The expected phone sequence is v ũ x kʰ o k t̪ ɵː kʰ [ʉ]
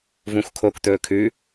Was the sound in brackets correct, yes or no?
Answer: yes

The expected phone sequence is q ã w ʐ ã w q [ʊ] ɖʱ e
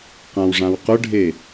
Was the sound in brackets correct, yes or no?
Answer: yes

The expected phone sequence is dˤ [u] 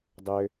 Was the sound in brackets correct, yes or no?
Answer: no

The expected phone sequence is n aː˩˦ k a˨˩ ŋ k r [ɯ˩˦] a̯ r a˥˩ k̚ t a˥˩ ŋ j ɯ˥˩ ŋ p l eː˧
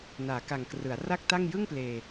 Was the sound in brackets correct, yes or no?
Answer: yes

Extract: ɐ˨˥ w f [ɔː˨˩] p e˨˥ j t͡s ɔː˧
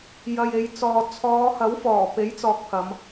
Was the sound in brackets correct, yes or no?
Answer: yes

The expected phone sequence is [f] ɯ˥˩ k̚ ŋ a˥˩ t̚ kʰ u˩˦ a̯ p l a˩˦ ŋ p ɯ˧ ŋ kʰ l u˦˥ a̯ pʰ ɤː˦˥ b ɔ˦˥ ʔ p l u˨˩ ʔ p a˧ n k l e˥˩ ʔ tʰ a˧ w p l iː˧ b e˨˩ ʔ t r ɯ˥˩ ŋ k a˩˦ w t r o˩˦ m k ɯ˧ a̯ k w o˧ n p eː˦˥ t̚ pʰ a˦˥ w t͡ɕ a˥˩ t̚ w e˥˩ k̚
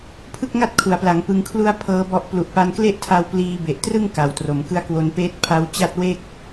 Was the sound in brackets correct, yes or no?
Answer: no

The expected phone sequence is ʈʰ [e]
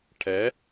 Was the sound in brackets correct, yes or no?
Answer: no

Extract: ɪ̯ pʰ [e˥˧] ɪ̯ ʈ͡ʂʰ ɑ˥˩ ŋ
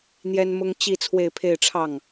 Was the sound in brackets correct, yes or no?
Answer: yes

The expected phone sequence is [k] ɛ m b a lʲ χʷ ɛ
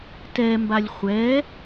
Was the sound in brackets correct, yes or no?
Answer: no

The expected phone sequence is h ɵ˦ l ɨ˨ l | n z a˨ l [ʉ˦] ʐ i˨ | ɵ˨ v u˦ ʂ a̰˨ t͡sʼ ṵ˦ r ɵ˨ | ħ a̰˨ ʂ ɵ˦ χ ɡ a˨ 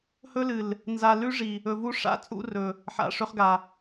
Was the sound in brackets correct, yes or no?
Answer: yes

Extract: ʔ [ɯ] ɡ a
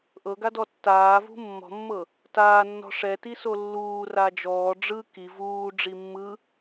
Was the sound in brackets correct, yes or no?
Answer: no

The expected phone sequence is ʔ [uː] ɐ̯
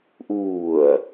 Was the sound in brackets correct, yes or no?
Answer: yes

